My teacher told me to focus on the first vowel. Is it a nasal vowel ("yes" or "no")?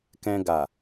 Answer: yes